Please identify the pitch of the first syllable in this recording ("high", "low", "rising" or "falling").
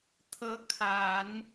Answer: rising